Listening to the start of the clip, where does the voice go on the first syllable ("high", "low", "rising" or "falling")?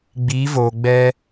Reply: rising